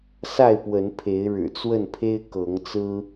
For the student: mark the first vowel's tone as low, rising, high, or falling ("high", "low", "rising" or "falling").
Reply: falling